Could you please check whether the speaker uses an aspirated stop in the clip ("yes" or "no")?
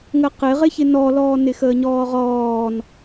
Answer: no